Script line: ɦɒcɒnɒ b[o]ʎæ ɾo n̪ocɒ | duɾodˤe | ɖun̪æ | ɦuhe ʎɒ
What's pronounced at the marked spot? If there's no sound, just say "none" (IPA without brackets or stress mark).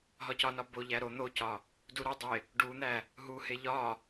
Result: o